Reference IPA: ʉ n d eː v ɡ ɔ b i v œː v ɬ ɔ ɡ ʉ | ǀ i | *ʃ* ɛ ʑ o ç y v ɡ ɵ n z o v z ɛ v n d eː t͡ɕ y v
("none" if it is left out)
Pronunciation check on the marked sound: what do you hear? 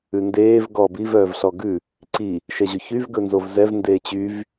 ʃ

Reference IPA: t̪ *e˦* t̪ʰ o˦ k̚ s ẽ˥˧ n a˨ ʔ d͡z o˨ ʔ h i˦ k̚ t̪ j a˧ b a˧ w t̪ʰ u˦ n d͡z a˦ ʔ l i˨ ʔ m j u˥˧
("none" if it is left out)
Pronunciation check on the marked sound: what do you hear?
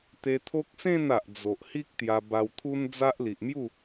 e˧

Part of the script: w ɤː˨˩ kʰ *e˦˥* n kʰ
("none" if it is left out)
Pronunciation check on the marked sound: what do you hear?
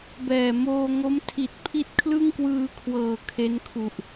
e˦˥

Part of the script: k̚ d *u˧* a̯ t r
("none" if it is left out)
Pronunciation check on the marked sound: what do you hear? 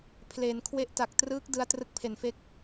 ɯ˧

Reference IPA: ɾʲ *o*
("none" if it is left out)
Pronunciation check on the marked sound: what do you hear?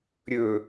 ɵ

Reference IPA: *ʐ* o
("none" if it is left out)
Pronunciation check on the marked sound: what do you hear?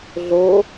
ɮ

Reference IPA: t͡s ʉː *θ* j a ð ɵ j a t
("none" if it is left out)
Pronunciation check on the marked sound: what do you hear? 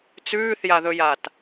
θ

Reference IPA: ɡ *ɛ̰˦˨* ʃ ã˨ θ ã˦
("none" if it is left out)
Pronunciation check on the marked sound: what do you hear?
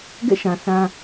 ɛ̰˦˨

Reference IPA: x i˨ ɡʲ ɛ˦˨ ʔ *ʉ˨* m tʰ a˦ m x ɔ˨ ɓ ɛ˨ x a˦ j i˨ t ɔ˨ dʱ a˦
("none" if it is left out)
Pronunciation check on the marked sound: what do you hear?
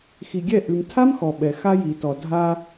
ʉ˨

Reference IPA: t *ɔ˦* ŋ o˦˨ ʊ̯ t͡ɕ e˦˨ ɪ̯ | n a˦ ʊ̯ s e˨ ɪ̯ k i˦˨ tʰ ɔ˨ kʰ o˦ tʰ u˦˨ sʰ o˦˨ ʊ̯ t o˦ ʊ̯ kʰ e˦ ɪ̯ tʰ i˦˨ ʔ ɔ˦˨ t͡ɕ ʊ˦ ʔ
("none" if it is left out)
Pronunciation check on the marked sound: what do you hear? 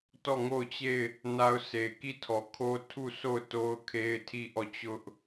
ɔ˦˨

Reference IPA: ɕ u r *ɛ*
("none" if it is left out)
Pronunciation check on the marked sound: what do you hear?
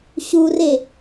e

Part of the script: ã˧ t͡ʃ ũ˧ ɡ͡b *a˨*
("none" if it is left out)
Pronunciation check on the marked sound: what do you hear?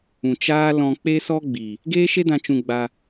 a˧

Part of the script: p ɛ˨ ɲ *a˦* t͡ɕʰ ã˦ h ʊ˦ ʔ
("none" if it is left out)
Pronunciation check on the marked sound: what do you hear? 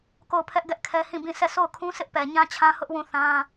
ã˦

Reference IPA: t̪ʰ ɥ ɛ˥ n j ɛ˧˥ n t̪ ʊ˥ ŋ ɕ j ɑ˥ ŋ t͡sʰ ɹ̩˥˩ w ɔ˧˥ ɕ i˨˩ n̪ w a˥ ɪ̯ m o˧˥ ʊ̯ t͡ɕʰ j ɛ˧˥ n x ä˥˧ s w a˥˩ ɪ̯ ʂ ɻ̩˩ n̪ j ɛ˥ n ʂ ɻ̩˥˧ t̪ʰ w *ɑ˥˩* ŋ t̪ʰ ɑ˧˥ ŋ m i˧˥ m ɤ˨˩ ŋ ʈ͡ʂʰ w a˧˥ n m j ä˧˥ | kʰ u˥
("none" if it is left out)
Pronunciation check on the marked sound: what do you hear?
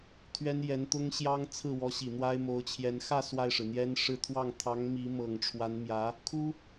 ɑ˥˩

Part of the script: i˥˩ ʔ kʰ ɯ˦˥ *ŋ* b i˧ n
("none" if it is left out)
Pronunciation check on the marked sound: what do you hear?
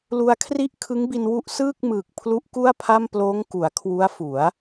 ŋ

